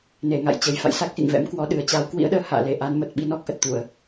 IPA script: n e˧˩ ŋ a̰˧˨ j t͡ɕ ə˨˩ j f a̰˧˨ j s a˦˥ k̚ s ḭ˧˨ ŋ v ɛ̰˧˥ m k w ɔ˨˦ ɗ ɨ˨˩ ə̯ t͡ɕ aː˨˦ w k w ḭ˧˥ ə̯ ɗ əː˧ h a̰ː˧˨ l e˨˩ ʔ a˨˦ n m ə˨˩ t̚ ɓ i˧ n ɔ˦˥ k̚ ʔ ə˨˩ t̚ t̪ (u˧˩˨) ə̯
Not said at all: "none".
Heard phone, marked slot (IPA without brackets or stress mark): u˧˩˨